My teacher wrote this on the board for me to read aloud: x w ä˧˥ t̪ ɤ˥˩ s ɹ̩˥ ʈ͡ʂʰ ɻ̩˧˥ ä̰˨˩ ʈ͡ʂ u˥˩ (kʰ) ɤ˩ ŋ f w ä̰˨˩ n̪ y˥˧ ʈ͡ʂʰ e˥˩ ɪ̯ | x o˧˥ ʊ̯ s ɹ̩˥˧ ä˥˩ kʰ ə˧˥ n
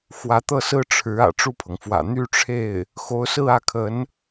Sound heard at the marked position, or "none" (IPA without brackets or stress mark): pʰ